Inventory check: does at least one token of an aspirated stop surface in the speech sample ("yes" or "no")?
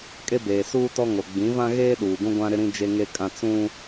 no